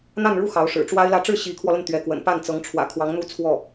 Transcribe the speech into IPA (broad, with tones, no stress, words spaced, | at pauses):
n̪a˥˧nɻu˥˩ xɑ˧˥ʊ̯ʂɻ̩˨˩ ʈ͡ʂwa˥ɪ̯lä˥˧ ʈ͡ʂɻ̩˥˩ ɕi˧˥kʰwɔ˧lə˥˩n t̪ɥɛ˧˥kwə̰˨˩n pa˥˩n t͡sɤ˧˥ŋʈ͡ʂʰwä̰˨˩ kʰwɑ˧˥ŋn̪u˥˧t͡sʰwɔ˥˩